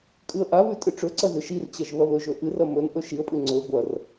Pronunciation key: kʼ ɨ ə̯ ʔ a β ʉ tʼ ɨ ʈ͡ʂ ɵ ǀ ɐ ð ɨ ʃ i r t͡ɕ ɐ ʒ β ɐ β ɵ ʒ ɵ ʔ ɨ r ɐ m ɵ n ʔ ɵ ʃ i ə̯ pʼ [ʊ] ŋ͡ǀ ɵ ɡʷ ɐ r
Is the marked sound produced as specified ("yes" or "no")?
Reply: no